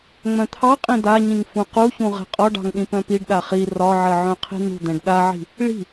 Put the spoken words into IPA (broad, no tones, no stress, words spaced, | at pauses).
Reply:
ŋ͡mœ̃t̪ʰɑqʼĩ d̪aɲĩŋ fũquçũ ʁɛ̤qʼɒɖɑ̤ŋ ɗĩpœ̃piɖɗa χi rɒʕɜ ʕœ̃qʰi̤n̪ṳd̪ɛ̃ɖ ɗaʕi̤ | ɭi̤